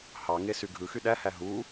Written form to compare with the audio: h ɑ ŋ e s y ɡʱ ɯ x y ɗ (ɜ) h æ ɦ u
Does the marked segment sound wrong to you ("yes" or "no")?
yes